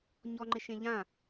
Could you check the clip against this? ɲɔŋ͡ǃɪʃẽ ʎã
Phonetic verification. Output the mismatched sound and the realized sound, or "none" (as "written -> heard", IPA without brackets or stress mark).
none